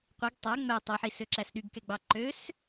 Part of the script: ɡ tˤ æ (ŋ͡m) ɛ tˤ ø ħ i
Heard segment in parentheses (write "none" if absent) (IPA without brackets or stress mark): ŋ͡m